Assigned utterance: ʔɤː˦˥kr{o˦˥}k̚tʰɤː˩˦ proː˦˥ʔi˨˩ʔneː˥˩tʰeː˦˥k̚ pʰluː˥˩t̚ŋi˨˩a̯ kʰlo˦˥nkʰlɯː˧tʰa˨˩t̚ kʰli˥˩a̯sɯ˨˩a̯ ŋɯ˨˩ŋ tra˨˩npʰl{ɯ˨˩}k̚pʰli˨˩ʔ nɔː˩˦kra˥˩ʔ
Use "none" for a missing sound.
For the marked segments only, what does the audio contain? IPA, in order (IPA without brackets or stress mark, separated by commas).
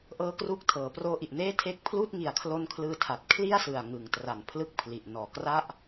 u˦˥, ɯ˦˥